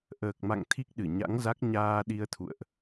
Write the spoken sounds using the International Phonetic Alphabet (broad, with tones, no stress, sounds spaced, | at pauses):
ʔ əː˨˩ k̚ m a̰˧˨ ŋ t̪ʰ i˦˥ k̚ ɗ ɨ˧˩ ɲ a̰˧˥ ŋ z a˦˥ k̚ ɲ aː˧ ɗ i˧ ə̯ t̪ʰ ṵ˧˨ ə̯ ʔ